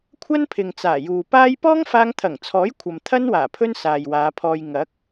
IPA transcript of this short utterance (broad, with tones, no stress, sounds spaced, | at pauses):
kʷʰ ɐ˥ n pʰ ɪ˨ ŋ t͡s aː˨˩ j uː˨ p aː˥ j p ɔː˥ ŋ f aː˧ ŋ t̪ʰ ɐ˨˩ ŋ t͡sʰ ɔː˨˥ j kʷʰ ɐ˨ m t̪ʰ ɐ˥ n w aː˨˩ pʰ ɵ˥ n s aː˨ j w aː˨˧ pʰ ɔː˧ j ŋ ɐ˨˥ k̚